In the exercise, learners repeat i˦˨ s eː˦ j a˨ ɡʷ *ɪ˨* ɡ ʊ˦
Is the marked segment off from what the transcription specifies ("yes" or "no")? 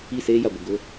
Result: no